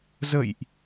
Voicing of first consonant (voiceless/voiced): voiced